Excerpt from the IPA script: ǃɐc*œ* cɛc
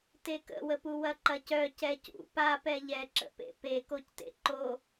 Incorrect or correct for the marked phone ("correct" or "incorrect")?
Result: correct